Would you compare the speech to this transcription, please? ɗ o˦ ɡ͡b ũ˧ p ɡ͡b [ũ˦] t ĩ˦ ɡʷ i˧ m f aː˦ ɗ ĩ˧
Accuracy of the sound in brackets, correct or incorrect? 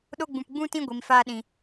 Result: correct